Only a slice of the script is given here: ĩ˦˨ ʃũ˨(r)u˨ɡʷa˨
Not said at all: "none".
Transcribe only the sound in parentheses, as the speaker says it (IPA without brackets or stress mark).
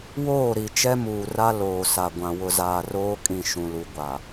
l